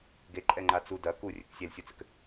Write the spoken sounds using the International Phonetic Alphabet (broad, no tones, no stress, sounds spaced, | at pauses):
ɡ e ǃʼ ɛ ŋ͡ǃ a t͡s u d ɐ k u rʲ ɘ k sʲ e l sʲ u t͡s ɘ k